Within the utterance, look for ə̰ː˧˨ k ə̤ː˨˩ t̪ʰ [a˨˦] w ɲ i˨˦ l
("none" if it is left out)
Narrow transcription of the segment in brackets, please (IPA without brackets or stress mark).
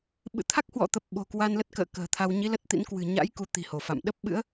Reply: a˧